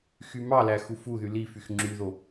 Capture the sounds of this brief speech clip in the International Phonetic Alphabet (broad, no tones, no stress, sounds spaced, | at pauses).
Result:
x y m ɑ l æ x u f u ð y l i f y x ŋ͡ǁ y ð o